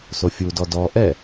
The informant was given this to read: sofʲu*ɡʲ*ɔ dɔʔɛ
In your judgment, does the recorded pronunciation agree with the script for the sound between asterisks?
no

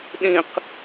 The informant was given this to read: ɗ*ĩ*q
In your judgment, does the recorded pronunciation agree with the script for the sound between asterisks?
yes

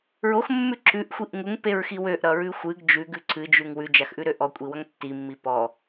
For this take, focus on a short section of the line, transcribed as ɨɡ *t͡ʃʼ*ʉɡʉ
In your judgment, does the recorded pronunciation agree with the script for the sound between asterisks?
no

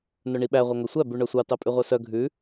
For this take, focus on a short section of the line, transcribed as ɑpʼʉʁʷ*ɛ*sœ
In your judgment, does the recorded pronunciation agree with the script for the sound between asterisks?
no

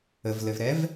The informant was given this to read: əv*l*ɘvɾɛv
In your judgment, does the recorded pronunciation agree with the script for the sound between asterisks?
yes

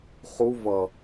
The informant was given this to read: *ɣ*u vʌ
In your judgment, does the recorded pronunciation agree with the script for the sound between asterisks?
no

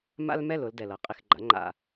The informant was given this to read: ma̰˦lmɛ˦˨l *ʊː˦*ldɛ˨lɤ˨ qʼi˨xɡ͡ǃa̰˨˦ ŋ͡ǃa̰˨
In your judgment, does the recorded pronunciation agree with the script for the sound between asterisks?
no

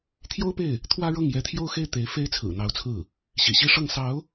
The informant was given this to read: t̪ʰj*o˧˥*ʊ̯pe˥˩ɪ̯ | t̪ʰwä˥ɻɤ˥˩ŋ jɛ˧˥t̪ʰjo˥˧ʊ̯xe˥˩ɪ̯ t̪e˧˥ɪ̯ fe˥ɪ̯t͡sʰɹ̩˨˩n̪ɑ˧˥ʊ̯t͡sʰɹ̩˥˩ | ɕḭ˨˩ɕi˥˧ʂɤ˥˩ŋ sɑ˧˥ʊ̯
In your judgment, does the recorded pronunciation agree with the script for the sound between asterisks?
no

